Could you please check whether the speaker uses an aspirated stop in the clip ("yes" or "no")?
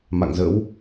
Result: no